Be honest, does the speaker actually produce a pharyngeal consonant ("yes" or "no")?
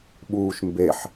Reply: yes